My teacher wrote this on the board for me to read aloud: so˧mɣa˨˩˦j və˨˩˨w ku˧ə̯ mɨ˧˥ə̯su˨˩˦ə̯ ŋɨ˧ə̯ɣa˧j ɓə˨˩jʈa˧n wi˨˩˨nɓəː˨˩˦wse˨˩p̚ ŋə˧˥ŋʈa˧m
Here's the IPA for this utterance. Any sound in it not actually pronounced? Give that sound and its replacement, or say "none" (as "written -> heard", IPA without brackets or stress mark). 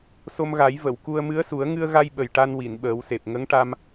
none